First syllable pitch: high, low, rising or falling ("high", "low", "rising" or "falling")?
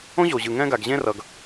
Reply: high